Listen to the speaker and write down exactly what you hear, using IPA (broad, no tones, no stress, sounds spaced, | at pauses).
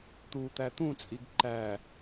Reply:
t̪ u t̪ æ t̪ ũ t͡sʼ i ɡ ǃ æ